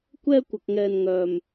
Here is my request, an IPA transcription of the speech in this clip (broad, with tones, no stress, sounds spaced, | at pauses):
kʷ ɛː˥ kʷ ɐ˧ k̚ ŋ ɛː˧ n ŋ œː˥ m